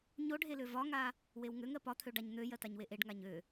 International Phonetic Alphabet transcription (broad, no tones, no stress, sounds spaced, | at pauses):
ɲ o ɖʱ e l ø v ɒ ŋ a | w e w ŋ ø ŋ ɜ p ɒ t̪ʰ ø ɖ a ɲ n̪ ø j ɜ t a ɲ w e ʔ e ɖ ŋ a ɲ ø